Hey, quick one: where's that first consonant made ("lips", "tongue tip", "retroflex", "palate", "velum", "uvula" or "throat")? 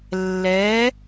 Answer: tongue tip